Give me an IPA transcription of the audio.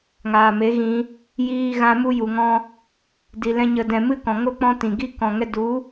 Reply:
ŋ aː˨ m e˨˦ ɣ ĩ˧ | j iː˧ ɣ ã˧ m u˧ j u˨ ŋ ɔ̃˧ | d i˨ l ɛ̃˧ ɲ ə˨ d ɛ̃˨ m ɨ˦ k ɔ̃˨ ŋ o˦ k͡p ɔ̃˦ t ĩ˨ ɡ i˦ k ɔ̃˨ ŋ ɛ˧ d u˨˦

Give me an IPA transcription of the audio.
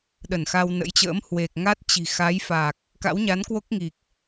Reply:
ɗ ə˧˩ n x a˧ w n ə̰˧˥ j t͡ɕ ə̰ː˧˥ m h w e˨˩ k̚ ŋ a˦˥ t̚ t͡ɕ i̤˨˩ x a˨˦ j f a˨˩ k̚ | k a̰˧˥ w ɲ a˨˦ n k w o˦˥ k̚ ŋ i˨˩ k̚

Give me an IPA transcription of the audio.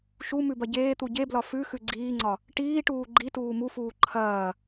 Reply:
ʃ u m ʉ b ɐ ɟ eː t̪ u ɟ e b l ɒ f ʉ x ʉ ɡ͡ǀ iː ŋ͡ǀ ɒ | ʈ iː ʈ uː ɡ͡ǃ i t uː m u f uː ǃʰ ɐː

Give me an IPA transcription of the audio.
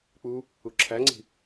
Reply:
k͡p u | u ǁʰ æ ŋ͡ǀ i̤

